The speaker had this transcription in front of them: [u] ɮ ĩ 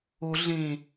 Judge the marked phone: correct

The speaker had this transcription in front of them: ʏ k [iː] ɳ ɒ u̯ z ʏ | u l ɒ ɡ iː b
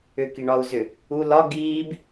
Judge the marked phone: incorrect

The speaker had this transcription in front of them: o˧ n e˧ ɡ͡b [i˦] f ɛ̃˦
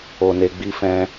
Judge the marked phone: correct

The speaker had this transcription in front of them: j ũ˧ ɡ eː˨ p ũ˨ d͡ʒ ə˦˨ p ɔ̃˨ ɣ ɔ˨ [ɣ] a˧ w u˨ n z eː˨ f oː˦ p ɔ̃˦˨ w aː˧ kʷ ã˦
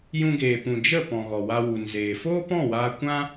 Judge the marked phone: incorrect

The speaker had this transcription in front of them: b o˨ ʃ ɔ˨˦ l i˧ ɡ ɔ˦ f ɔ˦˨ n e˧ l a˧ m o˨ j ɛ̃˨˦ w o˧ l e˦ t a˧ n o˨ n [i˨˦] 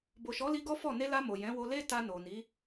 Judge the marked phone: correct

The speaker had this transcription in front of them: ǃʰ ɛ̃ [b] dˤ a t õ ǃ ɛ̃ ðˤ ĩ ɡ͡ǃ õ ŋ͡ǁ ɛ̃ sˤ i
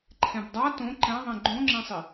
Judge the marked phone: correct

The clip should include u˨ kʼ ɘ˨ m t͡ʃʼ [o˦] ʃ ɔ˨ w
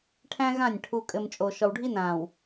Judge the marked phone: incorrect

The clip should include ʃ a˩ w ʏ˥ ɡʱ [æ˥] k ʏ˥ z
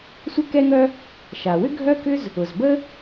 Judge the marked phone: incorrect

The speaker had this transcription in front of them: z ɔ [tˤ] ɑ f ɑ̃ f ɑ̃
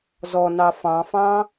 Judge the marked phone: incorrect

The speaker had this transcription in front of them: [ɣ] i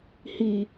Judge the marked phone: incorrect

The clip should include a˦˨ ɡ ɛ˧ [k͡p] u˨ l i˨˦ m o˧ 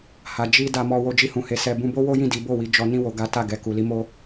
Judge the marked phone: incorrect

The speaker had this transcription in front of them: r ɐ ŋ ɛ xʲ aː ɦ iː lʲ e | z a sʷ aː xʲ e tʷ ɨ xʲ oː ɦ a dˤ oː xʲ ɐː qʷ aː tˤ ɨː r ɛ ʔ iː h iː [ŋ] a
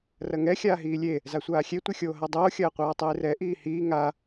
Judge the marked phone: correct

